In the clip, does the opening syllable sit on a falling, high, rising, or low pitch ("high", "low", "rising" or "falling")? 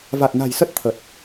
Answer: low